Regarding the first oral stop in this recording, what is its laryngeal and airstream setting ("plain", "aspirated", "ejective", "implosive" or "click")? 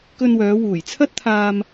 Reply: plain